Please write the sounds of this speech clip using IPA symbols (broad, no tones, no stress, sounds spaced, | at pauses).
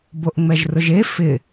b o ʔ ŋ͡m ɛ ʒ r ʊ ʒ e f ɪ